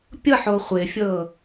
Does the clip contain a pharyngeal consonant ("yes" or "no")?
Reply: yes